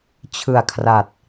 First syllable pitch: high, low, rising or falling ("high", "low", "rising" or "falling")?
low